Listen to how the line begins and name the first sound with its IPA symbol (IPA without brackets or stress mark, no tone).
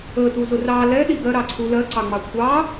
ə